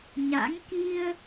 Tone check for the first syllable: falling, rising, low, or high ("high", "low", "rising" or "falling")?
rising